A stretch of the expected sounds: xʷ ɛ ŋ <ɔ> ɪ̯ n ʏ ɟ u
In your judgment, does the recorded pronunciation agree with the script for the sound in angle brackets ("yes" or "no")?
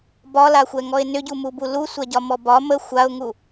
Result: yes